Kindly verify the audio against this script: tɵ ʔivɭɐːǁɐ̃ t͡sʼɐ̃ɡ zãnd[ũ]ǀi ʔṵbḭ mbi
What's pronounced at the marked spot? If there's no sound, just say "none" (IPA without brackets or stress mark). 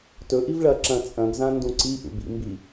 ũ